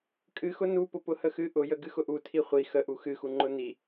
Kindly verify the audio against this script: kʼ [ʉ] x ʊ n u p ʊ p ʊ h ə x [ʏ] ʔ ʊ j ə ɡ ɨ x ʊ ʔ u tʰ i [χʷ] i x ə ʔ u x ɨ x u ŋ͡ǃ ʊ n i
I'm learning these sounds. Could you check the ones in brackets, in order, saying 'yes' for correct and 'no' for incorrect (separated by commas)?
no, no, yes